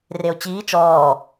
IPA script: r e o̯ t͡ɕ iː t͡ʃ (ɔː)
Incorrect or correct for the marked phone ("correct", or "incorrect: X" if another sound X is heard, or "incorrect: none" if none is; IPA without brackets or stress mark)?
correct